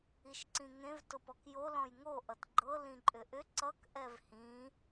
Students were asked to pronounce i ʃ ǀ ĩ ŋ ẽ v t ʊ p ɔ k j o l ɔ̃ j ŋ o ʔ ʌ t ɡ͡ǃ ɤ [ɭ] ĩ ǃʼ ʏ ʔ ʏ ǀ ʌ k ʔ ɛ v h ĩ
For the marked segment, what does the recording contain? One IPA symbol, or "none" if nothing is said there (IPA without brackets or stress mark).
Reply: l